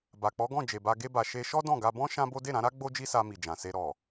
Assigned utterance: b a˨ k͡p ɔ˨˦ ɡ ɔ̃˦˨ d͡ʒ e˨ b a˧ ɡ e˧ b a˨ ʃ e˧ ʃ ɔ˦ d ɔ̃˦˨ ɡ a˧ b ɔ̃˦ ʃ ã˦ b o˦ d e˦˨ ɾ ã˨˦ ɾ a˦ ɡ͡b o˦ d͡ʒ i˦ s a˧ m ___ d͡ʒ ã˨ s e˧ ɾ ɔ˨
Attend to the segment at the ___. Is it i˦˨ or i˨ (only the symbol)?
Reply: i˨